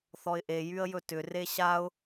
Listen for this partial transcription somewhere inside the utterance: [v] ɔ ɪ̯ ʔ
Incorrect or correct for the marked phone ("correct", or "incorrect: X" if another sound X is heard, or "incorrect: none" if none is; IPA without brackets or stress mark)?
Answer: incorrect: θ